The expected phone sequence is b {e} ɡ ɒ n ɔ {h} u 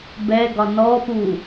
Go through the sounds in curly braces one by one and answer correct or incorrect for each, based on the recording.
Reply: incorrect: ɛ, incorrect: p

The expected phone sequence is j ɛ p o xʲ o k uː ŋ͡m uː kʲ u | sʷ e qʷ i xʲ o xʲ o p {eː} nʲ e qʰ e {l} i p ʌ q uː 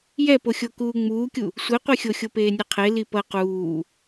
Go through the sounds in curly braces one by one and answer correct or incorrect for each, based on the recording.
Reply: correct, correct

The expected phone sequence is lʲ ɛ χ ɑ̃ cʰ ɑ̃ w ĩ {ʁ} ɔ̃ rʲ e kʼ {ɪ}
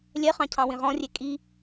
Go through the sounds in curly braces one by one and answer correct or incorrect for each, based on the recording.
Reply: correct, incorrect: i

